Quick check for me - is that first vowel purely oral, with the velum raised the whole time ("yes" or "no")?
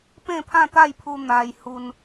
no